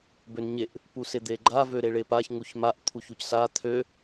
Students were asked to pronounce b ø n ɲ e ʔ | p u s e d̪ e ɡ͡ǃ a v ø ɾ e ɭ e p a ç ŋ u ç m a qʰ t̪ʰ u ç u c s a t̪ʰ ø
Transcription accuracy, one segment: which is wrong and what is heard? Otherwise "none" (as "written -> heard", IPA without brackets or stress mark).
qʰ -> ʔ